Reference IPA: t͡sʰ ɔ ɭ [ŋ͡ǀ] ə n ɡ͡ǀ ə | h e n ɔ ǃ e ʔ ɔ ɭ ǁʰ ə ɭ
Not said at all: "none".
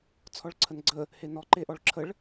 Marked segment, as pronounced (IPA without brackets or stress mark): ǀʰ